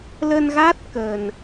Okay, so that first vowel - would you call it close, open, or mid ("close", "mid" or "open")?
mid